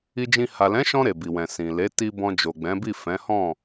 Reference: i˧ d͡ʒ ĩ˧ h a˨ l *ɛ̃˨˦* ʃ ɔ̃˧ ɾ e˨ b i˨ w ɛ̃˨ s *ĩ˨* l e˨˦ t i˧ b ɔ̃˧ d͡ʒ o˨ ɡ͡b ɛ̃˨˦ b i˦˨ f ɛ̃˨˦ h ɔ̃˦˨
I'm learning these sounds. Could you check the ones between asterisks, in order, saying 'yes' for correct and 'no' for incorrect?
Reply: yes, yes

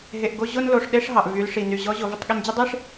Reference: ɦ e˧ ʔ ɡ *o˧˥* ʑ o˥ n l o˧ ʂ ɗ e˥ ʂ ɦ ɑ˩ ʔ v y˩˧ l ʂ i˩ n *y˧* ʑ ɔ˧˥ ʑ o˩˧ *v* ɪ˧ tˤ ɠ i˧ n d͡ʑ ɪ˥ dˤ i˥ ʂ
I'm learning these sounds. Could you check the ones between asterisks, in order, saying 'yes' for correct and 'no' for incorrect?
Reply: no, no, yes

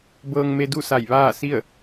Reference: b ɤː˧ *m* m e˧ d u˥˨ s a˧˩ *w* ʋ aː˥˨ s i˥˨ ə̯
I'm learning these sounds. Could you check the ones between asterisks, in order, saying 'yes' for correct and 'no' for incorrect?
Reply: no, no

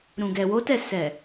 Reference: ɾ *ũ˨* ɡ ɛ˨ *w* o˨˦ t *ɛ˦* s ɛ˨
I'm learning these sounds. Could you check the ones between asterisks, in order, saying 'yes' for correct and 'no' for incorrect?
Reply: yes, yes, no

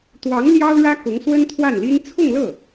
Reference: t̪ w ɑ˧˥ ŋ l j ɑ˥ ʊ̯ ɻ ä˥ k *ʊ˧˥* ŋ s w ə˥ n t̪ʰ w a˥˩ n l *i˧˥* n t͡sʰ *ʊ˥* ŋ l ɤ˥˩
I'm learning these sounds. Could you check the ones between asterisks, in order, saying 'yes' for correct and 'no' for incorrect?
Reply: yes, no, no

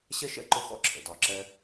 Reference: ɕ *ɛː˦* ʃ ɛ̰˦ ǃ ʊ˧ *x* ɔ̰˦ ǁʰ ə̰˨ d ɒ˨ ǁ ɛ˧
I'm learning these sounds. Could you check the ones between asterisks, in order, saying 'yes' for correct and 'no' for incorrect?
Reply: no, yes

